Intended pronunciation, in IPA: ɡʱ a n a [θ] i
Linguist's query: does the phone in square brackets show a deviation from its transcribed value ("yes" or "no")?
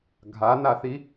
no